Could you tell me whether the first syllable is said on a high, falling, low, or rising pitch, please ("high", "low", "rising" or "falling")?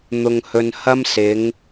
low